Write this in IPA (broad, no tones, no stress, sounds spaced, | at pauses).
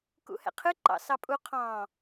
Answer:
k ṵ h ɛ̰ qʰ ɨ ǃ ɑ̰ s ɑ pʼ u qʰ ɑ̃